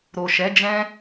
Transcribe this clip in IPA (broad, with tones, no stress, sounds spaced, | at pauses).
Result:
ɾ o˨ ʃ ɛ˨˦ d͡ʒ ɛ̃˦